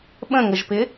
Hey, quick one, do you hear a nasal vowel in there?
yes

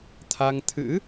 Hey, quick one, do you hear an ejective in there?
no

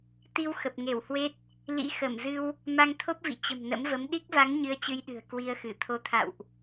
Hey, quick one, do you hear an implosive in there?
yes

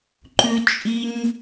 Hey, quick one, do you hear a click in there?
yes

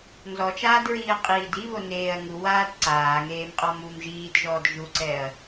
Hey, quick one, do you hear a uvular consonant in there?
yes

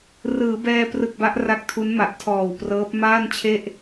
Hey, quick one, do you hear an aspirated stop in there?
yes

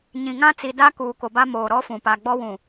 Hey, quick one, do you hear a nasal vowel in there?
yes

